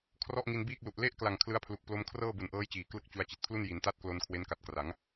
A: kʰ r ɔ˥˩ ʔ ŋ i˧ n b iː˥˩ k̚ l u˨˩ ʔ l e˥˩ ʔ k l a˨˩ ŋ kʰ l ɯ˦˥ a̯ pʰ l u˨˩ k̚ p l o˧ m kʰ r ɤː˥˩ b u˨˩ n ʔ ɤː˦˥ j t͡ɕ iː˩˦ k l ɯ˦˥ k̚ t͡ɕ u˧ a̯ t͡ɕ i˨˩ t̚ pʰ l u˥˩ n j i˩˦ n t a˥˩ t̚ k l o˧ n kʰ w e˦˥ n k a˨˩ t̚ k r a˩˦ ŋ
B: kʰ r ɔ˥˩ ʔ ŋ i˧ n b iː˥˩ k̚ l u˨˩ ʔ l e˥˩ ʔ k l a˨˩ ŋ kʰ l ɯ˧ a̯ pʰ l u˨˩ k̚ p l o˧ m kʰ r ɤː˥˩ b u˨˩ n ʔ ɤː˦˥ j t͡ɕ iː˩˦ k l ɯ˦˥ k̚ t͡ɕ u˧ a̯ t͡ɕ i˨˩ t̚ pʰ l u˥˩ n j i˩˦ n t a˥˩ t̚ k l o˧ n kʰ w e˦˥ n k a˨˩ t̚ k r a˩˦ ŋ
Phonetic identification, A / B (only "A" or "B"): A